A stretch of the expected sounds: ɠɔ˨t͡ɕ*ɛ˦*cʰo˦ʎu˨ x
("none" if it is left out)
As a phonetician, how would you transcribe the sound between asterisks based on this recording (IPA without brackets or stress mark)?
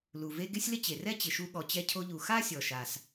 ɛ˦